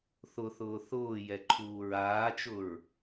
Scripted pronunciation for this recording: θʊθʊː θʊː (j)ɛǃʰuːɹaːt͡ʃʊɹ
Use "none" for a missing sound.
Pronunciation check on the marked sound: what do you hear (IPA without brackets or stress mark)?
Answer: j